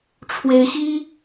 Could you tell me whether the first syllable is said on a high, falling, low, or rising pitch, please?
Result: rising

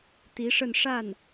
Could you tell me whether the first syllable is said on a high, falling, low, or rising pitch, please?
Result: rising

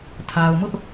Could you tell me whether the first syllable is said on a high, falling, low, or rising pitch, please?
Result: low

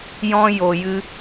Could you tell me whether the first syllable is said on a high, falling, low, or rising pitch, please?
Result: high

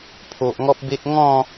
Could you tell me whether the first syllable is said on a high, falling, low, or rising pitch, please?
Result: low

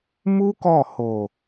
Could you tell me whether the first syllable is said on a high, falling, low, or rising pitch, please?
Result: high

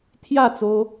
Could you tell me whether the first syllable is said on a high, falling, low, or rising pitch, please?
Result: falling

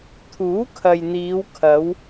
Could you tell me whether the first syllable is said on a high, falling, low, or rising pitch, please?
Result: rising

